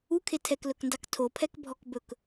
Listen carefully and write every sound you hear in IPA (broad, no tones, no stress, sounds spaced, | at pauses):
u kʰ e tʰ ɛ k l ɵ k n d ɑ k tʰ o pʰ ɛ k bʱ ɔ k b ɵ k